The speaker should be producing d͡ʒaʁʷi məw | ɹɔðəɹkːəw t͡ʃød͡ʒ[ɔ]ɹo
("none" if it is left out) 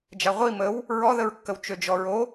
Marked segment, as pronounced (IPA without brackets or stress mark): ɔ